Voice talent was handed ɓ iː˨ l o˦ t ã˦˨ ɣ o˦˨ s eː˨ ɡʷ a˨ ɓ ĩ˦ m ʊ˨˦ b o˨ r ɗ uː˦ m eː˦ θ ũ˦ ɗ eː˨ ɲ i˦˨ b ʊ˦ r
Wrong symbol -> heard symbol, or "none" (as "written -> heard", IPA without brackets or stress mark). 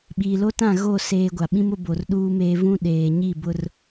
θ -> v